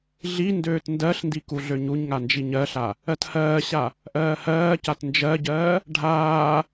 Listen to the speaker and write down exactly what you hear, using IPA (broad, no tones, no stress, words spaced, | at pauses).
ɮi ndøːtndɜɬndi kuɮøɲuɲŋa nd͡ʒiɲɜɬa | ɜthɜːɕa | ʔɜːhɜːcat nd͡ʒɜɟɜː | ɖʱaː